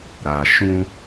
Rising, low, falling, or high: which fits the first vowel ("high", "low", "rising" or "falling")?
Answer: low